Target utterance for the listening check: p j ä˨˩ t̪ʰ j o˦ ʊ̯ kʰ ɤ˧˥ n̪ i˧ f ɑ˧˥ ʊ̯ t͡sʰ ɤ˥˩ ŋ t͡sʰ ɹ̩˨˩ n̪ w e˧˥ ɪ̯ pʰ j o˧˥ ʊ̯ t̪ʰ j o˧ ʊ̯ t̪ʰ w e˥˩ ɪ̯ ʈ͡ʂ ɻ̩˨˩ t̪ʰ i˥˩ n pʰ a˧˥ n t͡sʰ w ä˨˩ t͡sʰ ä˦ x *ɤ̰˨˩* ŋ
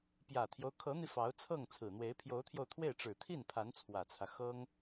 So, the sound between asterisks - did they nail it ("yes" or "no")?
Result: no